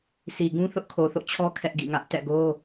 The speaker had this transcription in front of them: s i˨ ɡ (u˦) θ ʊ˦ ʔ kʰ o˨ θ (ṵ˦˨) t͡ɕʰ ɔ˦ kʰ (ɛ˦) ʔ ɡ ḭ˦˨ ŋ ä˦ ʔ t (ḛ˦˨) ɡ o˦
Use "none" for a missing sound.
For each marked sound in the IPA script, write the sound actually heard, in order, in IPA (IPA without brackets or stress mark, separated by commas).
ũ˦, o̰˦˨, ɛ˦, ɛ̰˦˨